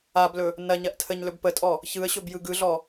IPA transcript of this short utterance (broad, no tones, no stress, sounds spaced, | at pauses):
a b l ɵ | n ɐ ɲ ɐ ʔ tʰ ə ɲ l ɵ b p ə tʼ ɔ | ç ɯ ə̯ ɕ ɵ b j ɯ ɡ ɯ ɮ ɔ